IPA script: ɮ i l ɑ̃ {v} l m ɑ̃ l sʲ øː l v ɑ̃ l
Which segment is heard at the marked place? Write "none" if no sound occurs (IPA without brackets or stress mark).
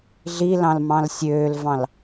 none